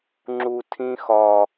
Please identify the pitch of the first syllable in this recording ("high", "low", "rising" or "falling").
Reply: low